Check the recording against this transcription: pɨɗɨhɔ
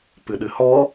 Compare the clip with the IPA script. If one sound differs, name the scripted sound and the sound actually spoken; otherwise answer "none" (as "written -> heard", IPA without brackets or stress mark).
none